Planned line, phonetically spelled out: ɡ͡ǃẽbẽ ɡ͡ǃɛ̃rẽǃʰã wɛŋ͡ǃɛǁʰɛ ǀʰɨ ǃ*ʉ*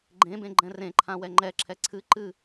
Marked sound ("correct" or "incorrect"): incorrect